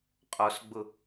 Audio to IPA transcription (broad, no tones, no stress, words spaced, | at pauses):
qʼɔsɡ͡bʊ